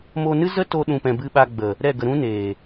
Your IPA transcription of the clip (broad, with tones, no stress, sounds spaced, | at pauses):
m o˧ n ɨ˦ z ə˦ t o˦ ɗ ũ˧ p ɛ̃˧ b ɨ˧ ɓ a˧ ɡ͡b ə˨ | ɾ ɛ˦˨ ɡ ə˧ ɾ ũ˦ n eː˨